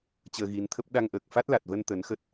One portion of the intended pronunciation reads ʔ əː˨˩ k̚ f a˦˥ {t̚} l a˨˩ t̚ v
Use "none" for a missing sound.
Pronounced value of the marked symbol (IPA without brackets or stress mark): t̚